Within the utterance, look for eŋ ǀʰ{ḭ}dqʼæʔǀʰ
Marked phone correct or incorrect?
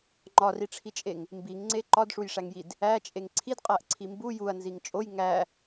incorrect: i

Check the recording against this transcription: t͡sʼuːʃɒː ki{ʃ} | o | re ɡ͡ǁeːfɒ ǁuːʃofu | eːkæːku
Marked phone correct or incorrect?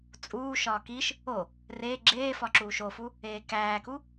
correct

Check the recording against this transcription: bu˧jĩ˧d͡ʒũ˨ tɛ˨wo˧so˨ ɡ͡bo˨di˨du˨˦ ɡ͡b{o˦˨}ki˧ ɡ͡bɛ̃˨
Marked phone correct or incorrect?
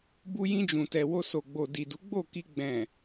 correct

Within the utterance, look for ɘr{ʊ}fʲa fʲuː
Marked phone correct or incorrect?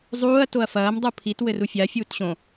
incorrect: u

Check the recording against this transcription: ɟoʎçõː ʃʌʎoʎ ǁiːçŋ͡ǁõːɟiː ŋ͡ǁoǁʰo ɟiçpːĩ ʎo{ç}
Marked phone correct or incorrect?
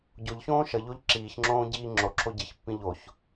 correct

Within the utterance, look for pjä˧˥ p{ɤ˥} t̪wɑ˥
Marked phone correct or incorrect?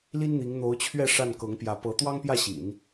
incorrect: ɤ˧˥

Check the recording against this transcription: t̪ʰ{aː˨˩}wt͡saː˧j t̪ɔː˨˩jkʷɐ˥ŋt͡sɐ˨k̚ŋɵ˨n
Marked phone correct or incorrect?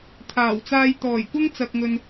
correct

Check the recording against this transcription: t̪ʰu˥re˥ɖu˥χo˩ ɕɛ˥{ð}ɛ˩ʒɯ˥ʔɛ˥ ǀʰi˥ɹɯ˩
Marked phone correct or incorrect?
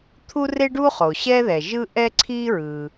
correct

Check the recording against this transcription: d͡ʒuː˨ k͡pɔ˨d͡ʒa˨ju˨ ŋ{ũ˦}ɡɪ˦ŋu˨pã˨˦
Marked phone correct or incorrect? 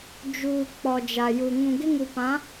incorrect: ũ˨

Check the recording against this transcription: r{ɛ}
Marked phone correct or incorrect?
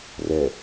correct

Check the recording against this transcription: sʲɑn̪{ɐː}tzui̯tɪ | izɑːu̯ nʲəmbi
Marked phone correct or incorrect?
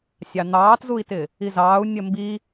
incorrect: ɑː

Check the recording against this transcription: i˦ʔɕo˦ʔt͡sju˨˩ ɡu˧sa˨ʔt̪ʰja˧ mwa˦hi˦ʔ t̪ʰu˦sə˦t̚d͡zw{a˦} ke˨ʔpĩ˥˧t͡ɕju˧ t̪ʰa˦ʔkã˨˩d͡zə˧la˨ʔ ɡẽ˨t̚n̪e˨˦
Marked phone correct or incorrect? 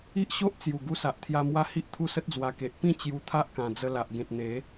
incorrect: a˧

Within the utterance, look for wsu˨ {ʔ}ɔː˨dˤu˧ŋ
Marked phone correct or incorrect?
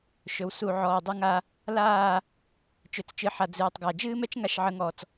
incorrect: ʕ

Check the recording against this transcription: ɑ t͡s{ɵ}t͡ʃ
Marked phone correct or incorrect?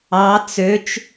incorrect: ø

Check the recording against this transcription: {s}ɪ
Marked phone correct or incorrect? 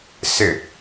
correct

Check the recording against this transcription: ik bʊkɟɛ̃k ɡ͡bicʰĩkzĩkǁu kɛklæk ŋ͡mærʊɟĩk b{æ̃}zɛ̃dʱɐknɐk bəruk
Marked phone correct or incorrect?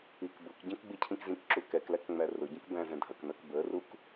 correct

